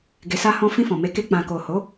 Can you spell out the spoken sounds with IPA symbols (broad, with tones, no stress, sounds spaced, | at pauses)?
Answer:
ɡ e˧ s a˦ h ɔ̃˦ f ĩ˧ f ɔ̃˨ m e˨˦ k e˧ k͡p ã˨ k o˨ h o˨˦